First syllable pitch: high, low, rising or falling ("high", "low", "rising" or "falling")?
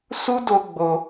high